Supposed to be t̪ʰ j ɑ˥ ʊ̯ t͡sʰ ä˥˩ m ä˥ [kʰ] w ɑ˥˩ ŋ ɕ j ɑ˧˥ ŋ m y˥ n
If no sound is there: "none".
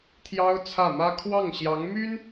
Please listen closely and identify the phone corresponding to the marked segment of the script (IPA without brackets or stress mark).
kʰ